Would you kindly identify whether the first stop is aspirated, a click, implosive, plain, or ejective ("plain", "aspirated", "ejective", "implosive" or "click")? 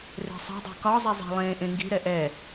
plain